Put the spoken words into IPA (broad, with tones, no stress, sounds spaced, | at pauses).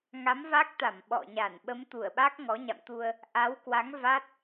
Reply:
ŋ a˨˦ m v a˦˥ k̚ t̪ a˧˩ m ɓ ɔ̰˧˨ ɲ a˧˩ n ɓ ə˨˦ m t̪ u˧˩ ə̯ ɓ a˦˥ k̚ ŋ ɔ˨˦ ɲ a̰˧˨ m t̪ u˧ ə̯ | ʔ a˨˦ w k w a˨˦ ŋ v a˦˥ t̚